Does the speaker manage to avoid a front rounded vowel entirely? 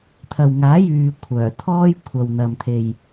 no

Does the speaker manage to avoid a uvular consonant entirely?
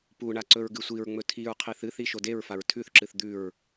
no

